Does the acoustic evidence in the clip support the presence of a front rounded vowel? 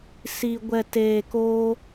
no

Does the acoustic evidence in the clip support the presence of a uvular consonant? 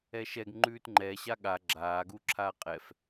yes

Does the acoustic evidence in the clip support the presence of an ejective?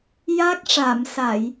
no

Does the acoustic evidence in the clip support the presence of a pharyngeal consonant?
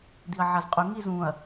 yes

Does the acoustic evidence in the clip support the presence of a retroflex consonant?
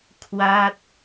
no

